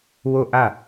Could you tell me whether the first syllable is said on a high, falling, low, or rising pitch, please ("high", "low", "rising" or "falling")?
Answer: falling